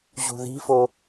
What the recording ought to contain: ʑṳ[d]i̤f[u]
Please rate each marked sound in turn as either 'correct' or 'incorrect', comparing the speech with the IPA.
incorrect: ð, incorrect: o

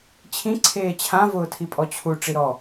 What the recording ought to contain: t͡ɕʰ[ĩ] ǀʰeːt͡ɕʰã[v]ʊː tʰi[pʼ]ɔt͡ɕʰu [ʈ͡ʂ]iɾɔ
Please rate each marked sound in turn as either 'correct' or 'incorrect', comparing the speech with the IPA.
correct, correct, correct, correct

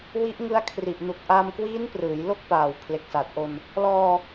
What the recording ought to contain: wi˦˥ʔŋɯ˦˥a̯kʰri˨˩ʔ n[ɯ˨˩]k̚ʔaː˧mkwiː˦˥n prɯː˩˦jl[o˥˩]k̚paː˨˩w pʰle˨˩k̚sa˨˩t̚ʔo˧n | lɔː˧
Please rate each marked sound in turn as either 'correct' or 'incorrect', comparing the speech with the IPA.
incorrect: u˨˩, correct

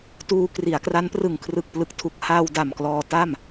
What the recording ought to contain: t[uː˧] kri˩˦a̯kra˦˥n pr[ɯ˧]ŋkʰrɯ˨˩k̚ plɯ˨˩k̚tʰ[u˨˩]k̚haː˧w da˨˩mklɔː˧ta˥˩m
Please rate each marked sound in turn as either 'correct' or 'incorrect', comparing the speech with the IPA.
correct, incorrect: ɯ˨˩, correct

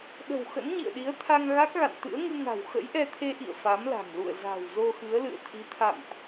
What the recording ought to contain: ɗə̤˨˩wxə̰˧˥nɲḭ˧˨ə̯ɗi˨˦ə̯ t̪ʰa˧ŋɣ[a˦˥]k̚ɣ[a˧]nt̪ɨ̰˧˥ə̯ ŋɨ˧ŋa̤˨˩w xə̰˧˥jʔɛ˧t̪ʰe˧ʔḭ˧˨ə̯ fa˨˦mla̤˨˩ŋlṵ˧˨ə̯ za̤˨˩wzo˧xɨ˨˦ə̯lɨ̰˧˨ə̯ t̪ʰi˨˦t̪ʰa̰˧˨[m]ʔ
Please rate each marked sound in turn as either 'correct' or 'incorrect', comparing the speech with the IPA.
correct, incorrect: a̰˧˨, correct

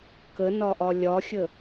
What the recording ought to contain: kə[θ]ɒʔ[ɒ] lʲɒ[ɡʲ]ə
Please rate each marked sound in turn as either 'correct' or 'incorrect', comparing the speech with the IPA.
incorrect: n, correct, incorrect: xʲ

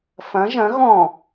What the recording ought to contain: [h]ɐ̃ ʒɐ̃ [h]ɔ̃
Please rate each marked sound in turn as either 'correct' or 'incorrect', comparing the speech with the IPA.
incorrect: f, incorrect: ɣ

